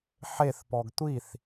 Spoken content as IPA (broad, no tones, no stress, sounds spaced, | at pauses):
ħ e θ p ɔ ɡ tʷ i θ